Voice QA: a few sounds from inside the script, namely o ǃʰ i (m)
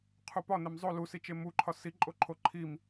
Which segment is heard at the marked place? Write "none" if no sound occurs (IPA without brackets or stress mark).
m